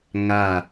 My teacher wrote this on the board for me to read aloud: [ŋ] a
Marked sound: correct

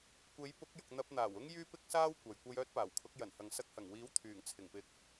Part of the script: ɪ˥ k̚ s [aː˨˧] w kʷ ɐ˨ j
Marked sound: incorrect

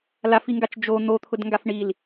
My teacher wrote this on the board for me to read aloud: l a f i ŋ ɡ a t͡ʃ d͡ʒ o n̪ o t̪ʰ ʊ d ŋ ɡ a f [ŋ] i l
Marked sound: incorrect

